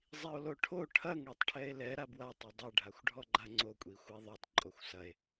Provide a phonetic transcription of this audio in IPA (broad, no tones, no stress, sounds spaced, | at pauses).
zˤ i o̯ l o ʈʰ o ʈʰ ɐ ŋ ɽ a tˤ ʈʰ ɛ e̯ l ɛ ɾ a b w a tˤ o dˤ ɛ ɖʱ a xʷ ɖʱ ɔ ɡ͡ǃ a ŋ͡ǀ o kʷʼ i xʷ ɯ e̯ ðˤ o tˤ ǃʼ o xʷ s ɐ e̯